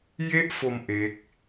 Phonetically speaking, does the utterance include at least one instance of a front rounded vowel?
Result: no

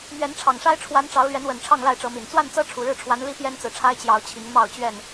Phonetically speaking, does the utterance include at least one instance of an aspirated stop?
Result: yes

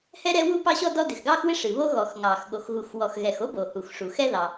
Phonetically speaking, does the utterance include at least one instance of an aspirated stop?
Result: no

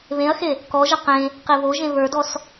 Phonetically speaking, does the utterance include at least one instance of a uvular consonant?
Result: yes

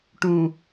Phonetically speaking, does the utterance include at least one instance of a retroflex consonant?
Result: yes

